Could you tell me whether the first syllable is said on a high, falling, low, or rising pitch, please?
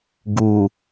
low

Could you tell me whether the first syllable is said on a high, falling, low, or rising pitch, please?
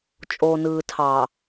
low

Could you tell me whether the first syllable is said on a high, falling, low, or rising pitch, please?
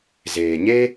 low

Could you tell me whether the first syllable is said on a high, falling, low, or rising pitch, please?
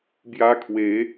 high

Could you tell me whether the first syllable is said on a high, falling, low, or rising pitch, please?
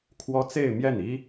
high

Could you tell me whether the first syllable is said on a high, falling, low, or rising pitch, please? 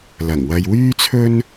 low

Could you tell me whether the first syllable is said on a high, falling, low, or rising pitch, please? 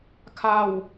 low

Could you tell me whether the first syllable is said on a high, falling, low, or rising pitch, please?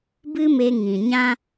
high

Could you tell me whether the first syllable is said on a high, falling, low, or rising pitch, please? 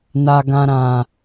low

